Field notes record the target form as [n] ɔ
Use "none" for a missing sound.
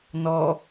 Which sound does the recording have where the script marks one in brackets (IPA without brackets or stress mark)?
n